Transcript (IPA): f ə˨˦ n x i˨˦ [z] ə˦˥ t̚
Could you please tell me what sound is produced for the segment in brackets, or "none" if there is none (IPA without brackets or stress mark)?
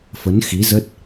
z